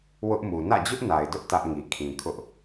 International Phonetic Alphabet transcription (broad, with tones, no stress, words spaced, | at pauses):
wʊ˦ʔmu˨ nä̰˦˨d͡ʑʊ˦ʔna˨ɪ̯dʊ˦ʔ tä˦ʔŋi˨kʰĩ˨ kʰʊ˦ʔ